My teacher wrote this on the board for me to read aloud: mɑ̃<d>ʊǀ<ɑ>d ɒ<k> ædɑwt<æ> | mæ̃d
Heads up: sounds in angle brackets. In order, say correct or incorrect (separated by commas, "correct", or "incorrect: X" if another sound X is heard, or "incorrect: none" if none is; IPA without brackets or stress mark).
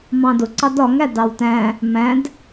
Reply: correct, correct, incorrect: ŋ, incorrect: æ̃